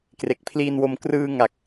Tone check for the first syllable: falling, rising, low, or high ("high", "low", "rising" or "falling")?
low